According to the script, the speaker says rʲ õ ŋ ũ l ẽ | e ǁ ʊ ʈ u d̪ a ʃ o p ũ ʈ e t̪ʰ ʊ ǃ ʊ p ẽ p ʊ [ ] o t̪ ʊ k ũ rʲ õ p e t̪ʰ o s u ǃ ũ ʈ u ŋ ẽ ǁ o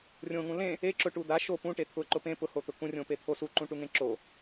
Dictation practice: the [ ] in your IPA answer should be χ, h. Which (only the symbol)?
h